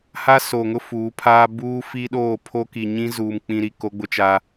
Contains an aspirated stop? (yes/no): yes